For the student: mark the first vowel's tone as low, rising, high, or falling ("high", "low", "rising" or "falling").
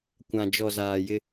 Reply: low